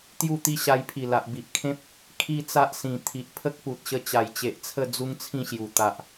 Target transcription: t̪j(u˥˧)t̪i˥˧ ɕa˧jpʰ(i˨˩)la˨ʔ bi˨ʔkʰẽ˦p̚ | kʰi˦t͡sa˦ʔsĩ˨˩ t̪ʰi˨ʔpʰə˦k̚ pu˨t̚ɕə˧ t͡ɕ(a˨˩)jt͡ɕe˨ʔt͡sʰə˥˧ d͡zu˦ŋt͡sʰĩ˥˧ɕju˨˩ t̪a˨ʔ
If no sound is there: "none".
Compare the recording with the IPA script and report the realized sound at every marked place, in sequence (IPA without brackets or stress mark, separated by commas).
u˥˧, i˨˩, a˨˩